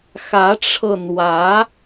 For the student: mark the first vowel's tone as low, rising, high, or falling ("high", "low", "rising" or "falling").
rising